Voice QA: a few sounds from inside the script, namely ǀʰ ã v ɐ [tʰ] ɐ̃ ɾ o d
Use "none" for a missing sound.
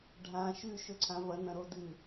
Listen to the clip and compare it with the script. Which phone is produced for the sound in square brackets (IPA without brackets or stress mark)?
n